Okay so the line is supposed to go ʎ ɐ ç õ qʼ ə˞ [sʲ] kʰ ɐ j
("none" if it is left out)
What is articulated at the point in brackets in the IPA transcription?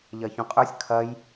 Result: sʲ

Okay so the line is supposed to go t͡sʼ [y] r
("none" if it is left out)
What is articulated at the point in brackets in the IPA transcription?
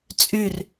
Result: y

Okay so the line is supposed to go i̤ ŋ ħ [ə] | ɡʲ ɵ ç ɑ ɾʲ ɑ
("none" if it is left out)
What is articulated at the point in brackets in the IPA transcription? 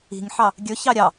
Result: ɑ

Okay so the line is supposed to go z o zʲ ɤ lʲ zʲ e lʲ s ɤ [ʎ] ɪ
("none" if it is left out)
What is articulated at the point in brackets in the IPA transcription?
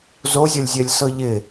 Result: ʎ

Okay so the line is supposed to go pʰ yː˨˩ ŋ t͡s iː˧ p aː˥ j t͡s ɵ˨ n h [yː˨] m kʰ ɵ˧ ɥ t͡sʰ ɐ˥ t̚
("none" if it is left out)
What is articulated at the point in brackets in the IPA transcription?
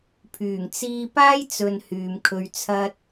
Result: yː˨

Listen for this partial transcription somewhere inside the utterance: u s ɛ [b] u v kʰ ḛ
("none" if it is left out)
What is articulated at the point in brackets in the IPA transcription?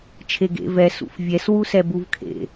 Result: b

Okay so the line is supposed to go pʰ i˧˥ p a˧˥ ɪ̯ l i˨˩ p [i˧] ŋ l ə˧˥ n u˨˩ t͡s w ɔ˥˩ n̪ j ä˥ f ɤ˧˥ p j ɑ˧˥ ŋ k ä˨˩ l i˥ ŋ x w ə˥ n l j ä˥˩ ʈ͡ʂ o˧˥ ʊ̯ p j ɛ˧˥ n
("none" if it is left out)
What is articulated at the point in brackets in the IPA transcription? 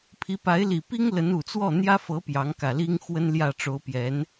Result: i˥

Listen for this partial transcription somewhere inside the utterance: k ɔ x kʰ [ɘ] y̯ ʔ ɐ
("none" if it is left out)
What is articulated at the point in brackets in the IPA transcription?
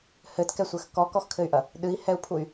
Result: ɘ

